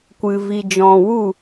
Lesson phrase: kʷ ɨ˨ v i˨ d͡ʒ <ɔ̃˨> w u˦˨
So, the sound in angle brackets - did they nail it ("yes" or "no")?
yes